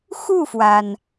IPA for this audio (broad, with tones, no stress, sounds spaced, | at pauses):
x u˥˩ f w a˩ n